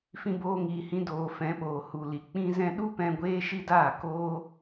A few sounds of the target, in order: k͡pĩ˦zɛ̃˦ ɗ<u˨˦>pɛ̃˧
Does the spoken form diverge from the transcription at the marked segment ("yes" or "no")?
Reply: yes